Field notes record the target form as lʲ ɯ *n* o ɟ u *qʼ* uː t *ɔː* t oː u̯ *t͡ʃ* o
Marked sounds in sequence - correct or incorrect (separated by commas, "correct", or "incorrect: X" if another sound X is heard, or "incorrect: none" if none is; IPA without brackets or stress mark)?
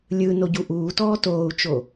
correct, incorrect: ʔ, correct, correct